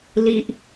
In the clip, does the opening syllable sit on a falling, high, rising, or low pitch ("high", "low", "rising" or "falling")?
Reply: high